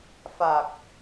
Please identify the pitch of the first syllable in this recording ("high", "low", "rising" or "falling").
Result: low